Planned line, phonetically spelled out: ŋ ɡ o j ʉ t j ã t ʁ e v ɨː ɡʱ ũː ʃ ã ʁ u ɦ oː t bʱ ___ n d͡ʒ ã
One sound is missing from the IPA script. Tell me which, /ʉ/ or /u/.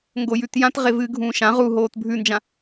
ʉ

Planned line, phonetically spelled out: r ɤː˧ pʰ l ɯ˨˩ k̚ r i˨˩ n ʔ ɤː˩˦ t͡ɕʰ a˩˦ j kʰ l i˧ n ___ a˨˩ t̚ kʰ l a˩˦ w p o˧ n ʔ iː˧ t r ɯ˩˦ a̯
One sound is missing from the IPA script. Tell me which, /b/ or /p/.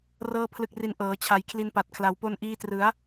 p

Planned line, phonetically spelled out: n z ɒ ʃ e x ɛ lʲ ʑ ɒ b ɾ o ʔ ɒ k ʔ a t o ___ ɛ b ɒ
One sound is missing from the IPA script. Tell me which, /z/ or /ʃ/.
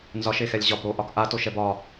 ʃ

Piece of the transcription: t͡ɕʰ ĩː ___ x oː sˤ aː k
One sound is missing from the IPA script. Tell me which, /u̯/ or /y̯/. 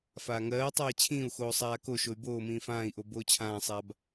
u̯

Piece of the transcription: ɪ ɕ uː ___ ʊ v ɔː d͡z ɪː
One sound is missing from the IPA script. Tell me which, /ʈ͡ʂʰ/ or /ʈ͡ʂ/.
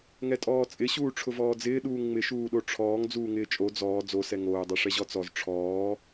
ʈ͡ʂʰ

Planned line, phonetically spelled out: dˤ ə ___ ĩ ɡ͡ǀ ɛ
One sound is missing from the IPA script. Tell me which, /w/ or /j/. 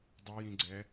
j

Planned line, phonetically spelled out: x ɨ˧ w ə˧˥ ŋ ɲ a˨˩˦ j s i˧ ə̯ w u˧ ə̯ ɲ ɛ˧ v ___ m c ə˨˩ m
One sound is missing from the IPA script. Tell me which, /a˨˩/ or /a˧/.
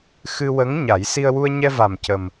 a˨˩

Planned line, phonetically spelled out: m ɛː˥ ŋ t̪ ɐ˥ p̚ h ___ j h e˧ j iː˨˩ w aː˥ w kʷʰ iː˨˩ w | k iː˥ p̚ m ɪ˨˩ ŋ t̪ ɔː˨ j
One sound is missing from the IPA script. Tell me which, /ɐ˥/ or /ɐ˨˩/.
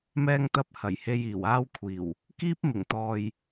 ɐ˨˩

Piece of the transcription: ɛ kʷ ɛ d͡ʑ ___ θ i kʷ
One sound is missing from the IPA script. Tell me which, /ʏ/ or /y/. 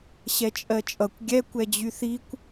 y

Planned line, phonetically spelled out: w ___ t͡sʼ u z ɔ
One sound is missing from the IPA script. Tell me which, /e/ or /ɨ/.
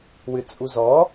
ɨ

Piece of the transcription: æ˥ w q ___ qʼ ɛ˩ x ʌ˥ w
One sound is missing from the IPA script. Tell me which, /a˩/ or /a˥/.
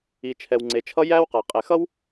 a˩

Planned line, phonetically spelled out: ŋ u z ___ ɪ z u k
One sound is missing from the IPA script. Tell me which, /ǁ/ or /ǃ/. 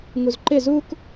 ǃ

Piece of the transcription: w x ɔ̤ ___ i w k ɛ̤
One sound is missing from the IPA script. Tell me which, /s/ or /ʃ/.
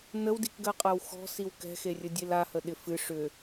s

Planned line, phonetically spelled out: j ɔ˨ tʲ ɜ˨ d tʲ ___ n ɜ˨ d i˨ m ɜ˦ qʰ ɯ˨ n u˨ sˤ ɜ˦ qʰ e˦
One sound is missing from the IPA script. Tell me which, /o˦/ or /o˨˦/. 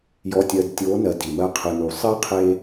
o˨˦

